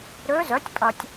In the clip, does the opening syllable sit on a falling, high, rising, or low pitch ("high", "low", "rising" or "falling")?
rising